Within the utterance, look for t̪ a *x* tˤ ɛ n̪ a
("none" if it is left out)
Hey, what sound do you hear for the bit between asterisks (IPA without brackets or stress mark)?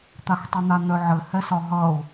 x